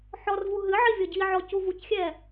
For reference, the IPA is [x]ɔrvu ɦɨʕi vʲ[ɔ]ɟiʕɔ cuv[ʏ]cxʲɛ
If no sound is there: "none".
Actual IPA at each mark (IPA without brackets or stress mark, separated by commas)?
ħ, ɔ, u